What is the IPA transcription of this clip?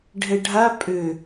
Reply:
ɖʱ ɛ ɖʱ a pʼ ø

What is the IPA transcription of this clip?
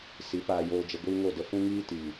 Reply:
s i˨˦ p aː˧ j oː˧ d͡ʒ ə˧ ɡʷ iː˦ ŋ o˦˨ d ə˧ f ũ˦ ŋ iː˦ t i˨

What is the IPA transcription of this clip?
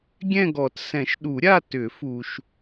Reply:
ɡʲ ɛ̃˥˧ ɡ ɔ˨˩˦ t s ɛ̃˨˩˦ ʃ ɗ u˨˩˦ ɾʲ a˥˧ t ʏ˨˩˦ f u˨ ʃ

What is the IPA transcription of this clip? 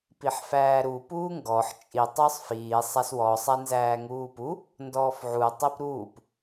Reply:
p i ħ f æː ɾ u p uː ŋ ɡ ɔ ħ t͡ʃʼ i tˤ ʊː sˤ f iː sˤ a s w ɔ sˤ æ n z æː ŋ uː p u | n d ɔː f ʕ u tˤ i p ɾ uː p

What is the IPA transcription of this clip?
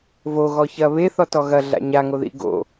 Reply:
v o ɣ ɔ ç ɐ β e θ ɔ t ɔ ɣ ɐ ɮ a̰ ɲ a ŋ o ð ḭ ɡ o̰

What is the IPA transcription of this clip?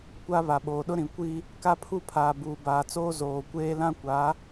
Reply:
kʷ a˦ β a˨ ɓ oː˨ ɗ ʊ˦ ɾ ĩ˨ kʷ i˦ | k a˦ pʰ u˦ pʰ aː˨ b uː˨ b aː˨ t͡s oː˦ z oː˨ kʷ eː˦ l ã˦ kʷ a˨˦

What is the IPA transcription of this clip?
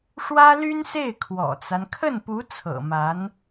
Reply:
ʂ w ä˥ l y˥ n s e˥˩ ɪ̯ kʰ w ɔ̰˨˩ t͡s a˦ n kʰ ə˥˩ n p u˧˥ t͡sʰ ɤ̰˨˩ m a˧˥ n

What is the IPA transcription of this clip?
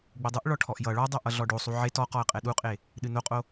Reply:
ɡ͡b u dˤ ɨ ʔ ɭ ɔ ʈʰ ɔ ʔ j ʌ ɭ ɔ dˤ o ʔ ʌ ɮ ɔ ɖ o sˤ u ʕ e t ɔ q ɔ ə̯ qʼ ɛ ɗ u qʼ e | ɗ ɨ n o qʼ o

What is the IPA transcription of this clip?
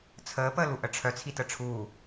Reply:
t͡sʰ əː p əː l u ʔ ə ʈ͡ʂʰ œ t͡sʰ i t ə ʈ͡ʂʰ uː

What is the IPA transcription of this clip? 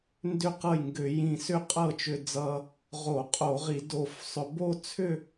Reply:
n d ʏ˥˩ q ɤ˥˩ j ŋ ɡ ʏ˧˩˧ j ĩ˧˩ s ʏ˥˩ qʼ ɤ˥˩ t͡ʃ ʏ˧ d͡z ʌ˧ | ʁ o˧˩˧ qʼ o˧˩˧ ʁ i˧˩˧ d o˧˩ f sˤ ʏ˧ b o˥˧ t͡sʰ ʏ˥˧

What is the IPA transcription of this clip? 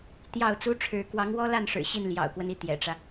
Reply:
t̪ j ɑ˥˩ ʊ̯ t͡s u˥ ʈ͡ʂʰ ɻ̩˧˥ k w ɑ˧˥ ŋ w ɔ˥ l a˥˩ n ʂ ɻ̩˨˩ ɕ i˥˩ n l j ɑ̰˨˩ ʊ̯ k w ə˦ n i˧˥ t̪ j ɛ̰˨˩ ʈ͡ʂ ä˦

